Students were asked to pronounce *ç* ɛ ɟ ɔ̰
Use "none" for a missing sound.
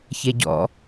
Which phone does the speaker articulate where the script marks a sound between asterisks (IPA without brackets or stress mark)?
ç